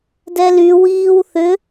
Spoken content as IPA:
d ɛ l y w iː w θ ʏ

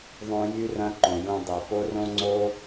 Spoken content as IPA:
ðˤ õ˦ j y˦ r ɐ̃˦ ǃ õ˨ j ũ˧ dˤ o˨ p o˦ r õ˦ ŋ͡ǀ o˦

